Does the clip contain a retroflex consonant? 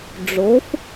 yes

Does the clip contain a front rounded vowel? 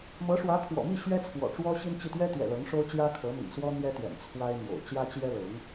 no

